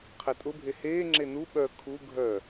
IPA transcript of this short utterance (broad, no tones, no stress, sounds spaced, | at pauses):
qʰ ɛ tʼ ʊ bʱ e h eː ŋ͡ǁ e n u ɓ œ kʰ u ɡʱ œ